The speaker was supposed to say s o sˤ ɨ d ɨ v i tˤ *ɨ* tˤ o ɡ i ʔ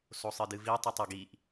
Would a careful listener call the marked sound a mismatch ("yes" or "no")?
yes